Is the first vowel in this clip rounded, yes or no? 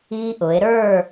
no